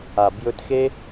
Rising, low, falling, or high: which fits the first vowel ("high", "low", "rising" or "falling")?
low